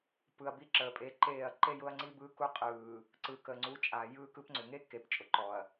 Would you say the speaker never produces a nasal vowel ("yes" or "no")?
yes